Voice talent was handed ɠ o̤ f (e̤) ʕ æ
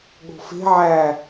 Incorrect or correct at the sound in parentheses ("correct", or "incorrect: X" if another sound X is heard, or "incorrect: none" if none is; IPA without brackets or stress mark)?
correct